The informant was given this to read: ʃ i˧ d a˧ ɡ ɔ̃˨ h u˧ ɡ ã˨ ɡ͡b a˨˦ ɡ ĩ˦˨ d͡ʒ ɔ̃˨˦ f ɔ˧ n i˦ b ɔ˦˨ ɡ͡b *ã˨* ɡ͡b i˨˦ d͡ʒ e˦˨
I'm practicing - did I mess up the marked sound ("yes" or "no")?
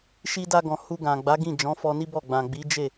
no